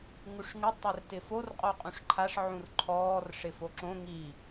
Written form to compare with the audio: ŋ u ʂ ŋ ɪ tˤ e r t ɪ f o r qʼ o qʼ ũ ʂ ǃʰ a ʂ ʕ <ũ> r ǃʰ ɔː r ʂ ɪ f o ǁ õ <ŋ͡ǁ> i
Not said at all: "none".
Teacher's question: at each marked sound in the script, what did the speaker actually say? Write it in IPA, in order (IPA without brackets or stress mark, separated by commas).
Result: ũ, ŋ